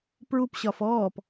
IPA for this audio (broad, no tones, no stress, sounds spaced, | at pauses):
p ɹ u p ɕ ɒ f ɔː p